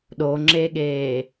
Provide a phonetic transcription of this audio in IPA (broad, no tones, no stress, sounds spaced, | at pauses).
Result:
ɗ o ŋ͡ǁ e ɠ eː